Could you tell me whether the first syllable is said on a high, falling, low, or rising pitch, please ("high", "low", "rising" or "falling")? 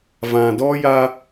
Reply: low